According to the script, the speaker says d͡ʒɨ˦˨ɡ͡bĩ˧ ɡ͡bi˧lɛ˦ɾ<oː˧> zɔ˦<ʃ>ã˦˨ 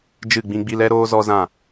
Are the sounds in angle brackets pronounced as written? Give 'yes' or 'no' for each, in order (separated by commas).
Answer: no, no